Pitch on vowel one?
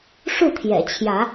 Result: falling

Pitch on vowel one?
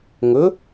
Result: rising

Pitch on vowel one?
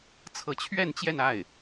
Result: rising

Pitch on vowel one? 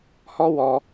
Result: high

